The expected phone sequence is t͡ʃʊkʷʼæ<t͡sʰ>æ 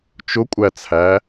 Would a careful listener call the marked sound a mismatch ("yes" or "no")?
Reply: no